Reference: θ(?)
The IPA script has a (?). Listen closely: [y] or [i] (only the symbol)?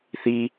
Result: i